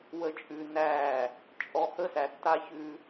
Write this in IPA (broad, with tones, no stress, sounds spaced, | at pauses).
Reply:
w ə˨ t͡ʃʼ ʉ˨ n æ˦˨ | t͡ʃʼ ɔ˨ h ə˦ s æ˨ tː a˦ ç ʉ˦